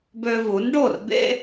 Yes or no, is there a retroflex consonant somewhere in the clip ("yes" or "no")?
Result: yes